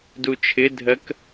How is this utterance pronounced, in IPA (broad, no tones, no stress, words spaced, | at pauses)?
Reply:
dut͡ʃʰɪdʱɜk